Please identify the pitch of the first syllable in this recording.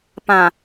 low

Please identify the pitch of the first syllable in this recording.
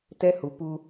high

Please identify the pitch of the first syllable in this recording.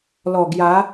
low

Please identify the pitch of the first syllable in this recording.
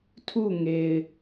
falling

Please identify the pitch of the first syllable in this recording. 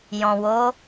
low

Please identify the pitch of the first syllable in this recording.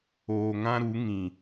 low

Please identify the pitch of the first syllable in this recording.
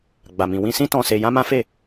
low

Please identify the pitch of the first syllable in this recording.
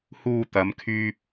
low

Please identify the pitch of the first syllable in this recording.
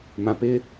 low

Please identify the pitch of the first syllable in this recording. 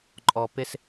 low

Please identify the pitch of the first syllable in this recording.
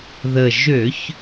low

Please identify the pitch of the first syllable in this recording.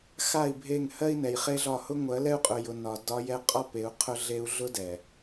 falling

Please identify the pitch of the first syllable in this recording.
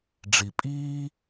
low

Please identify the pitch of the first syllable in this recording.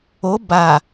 rising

